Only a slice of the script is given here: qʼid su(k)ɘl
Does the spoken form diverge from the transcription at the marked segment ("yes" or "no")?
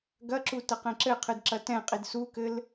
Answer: no